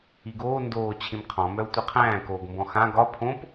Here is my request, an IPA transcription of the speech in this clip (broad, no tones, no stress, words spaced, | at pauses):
iɡoː ndoː t͡ɕʰĩmqʰɔ̃ mœu̯tʷiqʰæ̃ː koːɡmbɔ̃xã ɡɒ pʰõp